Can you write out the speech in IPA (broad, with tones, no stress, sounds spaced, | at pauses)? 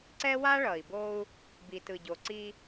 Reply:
ǀ ɛ˦ w a˦ ɭ ʌ˨ i̯ b o˦ u̯ | b i˨ t ɯ˨ ɟ o˨ ǀ i˦